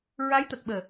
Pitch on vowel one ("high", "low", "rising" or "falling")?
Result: rising